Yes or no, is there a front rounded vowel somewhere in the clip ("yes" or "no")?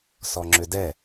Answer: yes